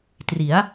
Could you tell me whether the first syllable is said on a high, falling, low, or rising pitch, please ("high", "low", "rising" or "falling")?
rising